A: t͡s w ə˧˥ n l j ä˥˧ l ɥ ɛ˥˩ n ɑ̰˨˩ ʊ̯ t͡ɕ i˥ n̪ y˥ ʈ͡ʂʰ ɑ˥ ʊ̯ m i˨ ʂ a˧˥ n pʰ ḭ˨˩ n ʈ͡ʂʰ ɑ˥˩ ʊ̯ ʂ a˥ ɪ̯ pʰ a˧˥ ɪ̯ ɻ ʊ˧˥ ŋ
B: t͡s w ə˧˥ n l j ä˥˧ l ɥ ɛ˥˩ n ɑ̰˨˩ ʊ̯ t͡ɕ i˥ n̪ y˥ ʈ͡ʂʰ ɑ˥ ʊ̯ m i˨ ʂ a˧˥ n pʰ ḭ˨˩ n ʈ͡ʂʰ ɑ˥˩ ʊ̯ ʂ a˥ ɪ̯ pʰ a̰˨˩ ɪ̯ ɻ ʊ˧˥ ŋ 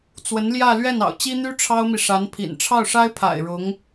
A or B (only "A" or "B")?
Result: B